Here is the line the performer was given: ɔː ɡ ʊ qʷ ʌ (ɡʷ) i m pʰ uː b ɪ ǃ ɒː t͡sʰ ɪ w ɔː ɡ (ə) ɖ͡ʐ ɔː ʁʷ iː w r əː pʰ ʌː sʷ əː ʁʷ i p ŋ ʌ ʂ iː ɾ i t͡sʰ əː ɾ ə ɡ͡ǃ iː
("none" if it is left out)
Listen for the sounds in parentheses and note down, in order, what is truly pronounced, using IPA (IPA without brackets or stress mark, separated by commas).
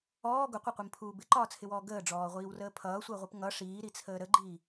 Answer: qʷ, əː